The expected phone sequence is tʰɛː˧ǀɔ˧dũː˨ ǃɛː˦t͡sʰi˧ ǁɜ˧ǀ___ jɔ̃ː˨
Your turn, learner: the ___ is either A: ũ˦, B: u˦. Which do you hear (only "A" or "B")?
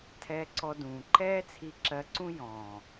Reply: A